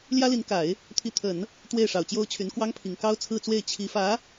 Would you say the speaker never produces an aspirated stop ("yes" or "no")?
no